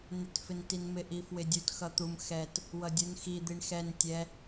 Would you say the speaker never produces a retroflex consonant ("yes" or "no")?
no